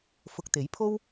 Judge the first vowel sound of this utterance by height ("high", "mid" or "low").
high